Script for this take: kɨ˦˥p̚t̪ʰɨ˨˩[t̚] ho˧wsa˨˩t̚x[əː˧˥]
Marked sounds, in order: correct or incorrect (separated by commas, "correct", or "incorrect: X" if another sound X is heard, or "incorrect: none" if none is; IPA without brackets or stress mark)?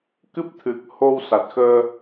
incorrect: k̚, incorrect: əː˧